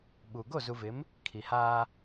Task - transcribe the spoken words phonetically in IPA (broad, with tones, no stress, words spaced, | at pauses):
ɓu˨ ɡo˦˨zu˨vɪ˨˦m | kʰi˨haː˦